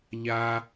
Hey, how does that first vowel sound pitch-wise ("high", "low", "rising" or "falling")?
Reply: high